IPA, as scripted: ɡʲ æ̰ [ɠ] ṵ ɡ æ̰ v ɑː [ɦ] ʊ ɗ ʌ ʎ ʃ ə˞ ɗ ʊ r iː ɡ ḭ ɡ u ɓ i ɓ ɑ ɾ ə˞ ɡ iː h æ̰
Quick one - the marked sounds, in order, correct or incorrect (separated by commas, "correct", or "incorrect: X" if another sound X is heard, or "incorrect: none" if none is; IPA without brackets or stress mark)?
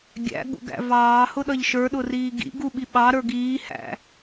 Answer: correct, incorrect: h